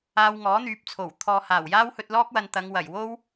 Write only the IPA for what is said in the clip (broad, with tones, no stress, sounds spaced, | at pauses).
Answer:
aː˧ w ŋ ɔː˨˥ n̪ yː˨˥ p̚ t͡sʰ o˨˩ w t̪ʰ ɔː˨ h aː˨˩ w j aː˥ w h ɵ˧ t̚ l ɔː˥ k̚ w ɐ˧ n t̪ ɐ˨˧ ŋ w ɐ˨˩ j w o˥ w